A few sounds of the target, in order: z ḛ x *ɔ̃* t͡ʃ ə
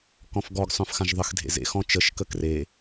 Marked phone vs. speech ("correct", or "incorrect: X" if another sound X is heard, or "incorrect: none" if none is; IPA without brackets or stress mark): correct